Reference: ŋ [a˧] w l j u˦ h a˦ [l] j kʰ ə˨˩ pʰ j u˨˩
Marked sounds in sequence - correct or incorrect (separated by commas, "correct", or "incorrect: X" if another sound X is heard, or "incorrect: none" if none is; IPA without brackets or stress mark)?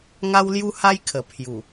incorrect: a˦, incorrect: none